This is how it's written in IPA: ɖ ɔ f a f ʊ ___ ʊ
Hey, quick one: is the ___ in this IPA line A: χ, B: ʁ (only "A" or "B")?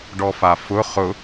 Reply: A